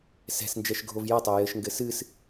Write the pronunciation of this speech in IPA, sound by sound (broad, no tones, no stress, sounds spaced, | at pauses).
s ɛ̤ s n d͡ʒ ɛ ʃ ɡʱ o v j ɐ tˤ ɛ j ɘ ʃ ŋ ɡ ɘ s ɨ s